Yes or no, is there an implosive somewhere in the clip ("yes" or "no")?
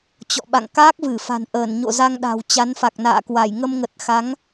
yes